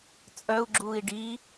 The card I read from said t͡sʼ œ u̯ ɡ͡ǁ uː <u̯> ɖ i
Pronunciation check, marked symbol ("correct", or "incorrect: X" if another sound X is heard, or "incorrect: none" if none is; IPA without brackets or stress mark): incorrect: i̯